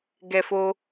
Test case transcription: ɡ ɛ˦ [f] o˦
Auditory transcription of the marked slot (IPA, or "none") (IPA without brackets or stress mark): f